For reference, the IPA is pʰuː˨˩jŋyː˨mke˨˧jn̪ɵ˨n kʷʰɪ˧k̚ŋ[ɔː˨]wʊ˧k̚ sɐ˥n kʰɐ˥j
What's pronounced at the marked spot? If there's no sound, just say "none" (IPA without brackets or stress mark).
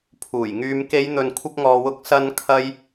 ɔː˨